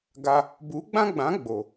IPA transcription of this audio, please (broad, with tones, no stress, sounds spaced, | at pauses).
ɡ a˧ | b u˨˦ ɡ͡b ã˦ ɡ͡b ã˨˦ ɡ͡b o˨